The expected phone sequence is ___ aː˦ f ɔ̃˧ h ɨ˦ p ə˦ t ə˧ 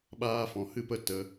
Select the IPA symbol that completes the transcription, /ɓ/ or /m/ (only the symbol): ɓ